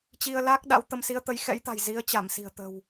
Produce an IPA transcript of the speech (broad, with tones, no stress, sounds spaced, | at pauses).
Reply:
t͡ɕ i˧ ə̯ l a˦˥ k̚ ɗ a̰˧˥ w t̪ ə˨˦ m s i˨˦ ə̯ t̪ ə˨˦ j x ɛ̰˧˥ j t̪ a̤˨˩ j z i˨˦ ə̯ t͡ɕ a˧˩ m s i̤˨˩ ə̯ t̪ ə̤˨˩ w